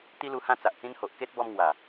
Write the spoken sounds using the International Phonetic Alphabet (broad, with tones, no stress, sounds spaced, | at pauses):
t̪ i˦ l u˧ h ã˦ t͡s a˨ ʔ t͡s ĩ˦ n h o˨ ʔ k e˦ t̚ b ɔ˧ m ŋ w a˨˩